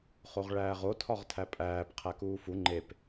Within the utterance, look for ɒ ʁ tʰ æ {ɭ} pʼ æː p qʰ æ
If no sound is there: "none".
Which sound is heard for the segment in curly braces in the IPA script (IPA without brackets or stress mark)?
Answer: none